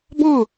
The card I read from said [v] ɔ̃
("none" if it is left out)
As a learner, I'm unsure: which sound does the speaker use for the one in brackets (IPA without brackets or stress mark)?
b